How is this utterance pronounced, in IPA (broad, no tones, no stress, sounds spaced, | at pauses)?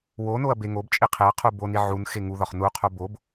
w o n o ɐ̯ b e ŋ o b t͡ʃʼ i qʰ e ɐ̯ qʰ u b o n i ʕ u n x e ŋ u ð ɒ χ n u qʰ o b o b